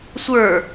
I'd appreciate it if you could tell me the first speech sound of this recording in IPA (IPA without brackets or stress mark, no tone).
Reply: sʷ